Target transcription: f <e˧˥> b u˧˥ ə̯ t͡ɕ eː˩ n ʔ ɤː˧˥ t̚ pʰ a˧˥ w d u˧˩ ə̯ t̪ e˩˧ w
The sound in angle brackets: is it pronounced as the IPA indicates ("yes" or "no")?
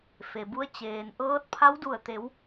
no